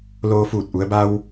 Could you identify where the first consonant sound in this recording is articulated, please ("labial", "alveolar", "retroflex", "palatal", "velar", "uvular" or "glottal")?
alveolar